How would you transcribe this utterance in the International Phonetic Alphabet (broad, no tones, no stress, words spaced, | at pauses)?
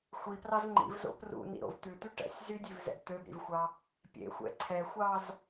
xʷiprɑz ŋ͡ǃḭvzo̰ prṵnḭɾo̰v t̪ʉt̪y ʈɛ̰sʲ zydʲʉvzɛ̰b t̪øbɾḭvxʷɑ | pʲḛxʷɛ̰ ǀʰɛxʷɑz